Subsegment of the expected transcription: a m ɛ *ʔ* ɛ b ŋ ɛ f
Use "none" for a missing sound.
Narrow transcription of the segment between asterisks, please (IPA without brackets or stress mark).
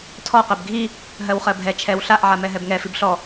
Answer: ɦ